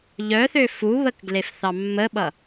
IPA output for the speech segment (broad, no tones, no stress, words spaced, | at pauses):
ʎœθø fuβəkɡlefθɑ mːəɓʌ